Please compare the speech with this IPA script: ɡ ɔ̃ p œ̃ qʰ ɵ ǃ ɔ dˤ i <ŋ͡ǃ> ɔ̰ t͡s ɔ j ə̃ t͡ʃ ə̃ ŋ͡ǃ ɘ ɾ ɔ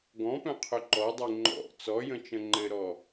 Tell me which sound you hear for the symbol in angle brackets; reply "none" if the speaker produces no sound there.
ŋ͡ǃ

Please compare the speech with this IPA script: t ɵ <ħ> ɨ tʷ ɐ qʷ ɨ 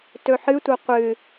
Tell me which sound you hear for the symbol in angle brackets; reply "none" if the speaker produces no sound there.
ħ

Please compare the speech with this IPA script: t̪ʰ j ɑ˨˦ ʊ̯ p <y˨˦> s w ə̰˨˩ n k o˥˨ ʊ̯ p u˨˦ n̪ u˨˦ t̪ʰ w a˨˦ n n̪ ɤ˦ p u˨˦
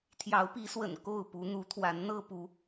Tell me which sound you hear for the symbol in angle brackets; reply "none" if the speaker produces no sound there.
i˨˦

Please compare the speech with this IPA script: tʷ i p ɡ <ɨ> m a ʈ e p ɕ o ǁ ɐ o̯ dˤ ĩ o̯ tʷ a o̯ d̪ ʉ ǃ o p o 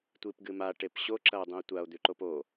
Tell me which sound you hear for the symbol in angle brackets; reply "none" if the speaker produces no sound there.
ɨ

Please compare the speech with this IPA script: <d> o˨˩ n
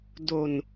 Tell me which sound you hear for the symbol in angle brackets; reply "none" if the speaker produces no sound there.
d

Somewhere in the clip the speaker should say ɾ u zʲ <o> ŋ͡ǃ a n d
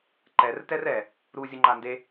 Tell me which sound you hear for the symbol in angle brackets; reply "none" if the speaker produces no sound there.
o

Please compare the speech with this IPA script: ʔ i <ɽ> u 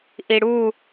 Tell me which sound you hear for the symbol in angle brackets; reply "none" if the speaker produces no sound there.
ɽ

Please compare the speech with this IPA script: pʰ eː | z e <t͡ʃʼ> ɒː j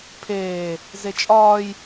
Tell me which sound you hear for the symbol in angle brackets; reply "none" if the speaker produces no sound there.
t͡ʃʼ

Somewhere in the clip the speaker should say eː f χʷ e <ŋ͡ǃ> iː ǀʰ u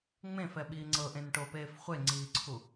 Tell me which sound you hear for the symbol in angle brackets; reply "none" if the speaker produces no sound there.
ŋ͡ǀ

